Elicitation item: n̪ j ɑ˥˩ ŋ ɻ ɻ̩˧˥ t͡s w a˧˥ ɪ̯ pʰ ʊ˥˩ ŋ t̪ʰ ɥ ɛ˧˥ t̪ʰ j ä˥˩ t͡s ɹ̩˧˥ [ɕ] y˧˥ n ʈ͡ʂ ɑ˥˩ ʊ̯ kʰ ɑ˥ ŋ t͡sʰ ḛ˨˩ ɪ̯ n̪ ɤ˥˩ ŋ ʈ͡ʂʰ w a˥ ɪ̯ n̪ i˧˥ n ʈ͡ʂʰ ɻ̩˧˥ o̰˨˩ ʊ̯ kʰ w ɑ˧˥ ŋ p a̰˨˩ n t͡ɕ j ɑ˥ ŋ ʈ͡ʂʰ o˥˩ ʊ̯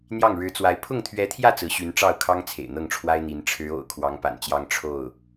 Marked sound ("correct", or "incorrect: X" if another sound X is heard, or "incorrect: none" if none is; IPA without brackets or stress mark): correct